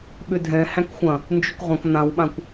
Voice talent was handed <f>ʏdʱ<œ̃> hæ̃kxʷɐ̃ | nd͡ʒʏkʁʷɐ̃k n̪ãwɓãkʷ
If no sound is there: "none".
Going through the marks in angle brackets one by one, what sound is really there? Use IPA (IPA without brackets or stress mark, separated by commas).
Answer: ɓ, ɛ̃